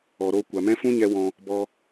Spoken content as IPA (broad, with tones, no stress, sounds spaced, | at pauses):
ɔ˨ ɾ o˧ kʷ a˨ m ɛ̃˦ f ũ˦ ɲ ɛ˧ w ɔ̃˧ | b ɔ˧